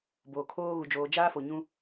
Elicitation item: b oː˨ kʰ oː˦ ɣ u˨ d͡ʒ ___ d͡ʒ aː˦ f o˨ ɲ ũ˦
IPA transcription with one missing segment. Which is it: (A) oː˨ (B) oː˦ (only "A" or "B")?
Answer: A